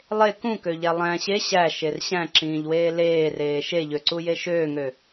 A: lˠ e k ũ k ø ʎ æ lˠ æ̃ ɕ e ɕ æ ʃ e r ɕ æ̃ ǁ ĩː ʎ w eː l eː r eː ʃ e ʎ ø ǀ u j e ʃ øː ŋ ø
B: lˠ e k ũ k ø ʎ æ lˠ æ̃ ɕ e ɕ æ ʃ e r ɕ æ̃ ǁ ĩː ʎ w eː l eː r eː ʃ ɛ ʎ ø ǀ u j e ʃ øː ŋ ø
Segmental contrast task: A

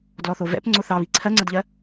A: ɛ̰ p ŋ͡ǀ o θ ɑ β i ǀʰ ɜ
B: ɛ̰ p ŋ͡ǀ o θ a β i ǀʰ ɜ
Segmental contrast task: A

